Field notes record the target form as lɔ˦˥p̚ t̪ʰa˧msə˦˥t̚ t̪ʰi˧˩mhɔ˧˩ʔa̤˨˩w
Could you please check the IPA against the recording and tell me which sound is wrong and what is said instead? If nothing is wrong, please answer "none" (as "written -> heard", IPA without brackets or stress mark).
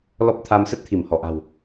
none